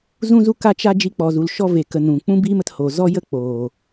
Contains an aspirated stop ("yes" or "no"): no